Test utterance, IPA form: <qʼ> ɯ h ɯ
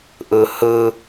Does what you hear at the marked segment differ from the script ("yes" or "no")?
yes